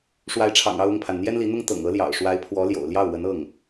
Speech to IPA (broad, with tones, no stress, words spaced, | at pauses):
ʂwa˧˥ɪ̯ʈ͡ʂʰɑ̰˨˩ŋɑ˥˧ʊ̯ ʊ˥˩ŋpʰa˩n n̪jɛ˥nli˧˥n̪ʊ˥ŋ t̪ɤ̰˨˩ŋɤ˧˥ljɑ̰˨˩ʊ̯ ʂwa˧˥ɪ̯pʰwɔ˧˥ljo̰˨˩ʊ̯ ljɑ˥˩ʊ̯wə˧˥nɤ˥˩ŋ